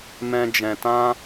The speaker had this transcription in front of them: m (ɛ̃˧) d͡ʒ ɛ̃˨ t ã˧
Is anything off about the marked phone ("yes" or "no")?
no